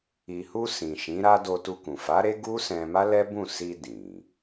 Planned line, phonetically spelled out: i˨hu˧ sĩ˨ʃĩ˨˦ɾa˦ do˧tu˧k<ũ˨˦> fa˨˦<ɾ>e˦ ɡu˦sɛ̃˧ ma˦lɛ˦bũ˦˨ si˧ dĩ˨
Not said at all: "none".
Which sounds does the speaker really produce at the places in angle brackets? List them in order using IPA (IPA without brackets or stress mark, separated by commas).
ũ˨, ɾ